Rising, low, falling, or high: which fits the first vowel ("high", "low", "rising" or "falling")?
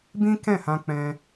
high